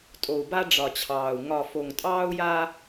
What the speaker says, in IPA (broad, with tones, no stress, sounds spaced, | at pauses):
tʼ o˨ u̯ b a˦ ɖ͡ʐ ɒ˨ t͡ɕʰ ɑː˨ u̯ ŋ ɒ˨ f o˨ ŋ tʼ ɑː˦ u̯ j a˦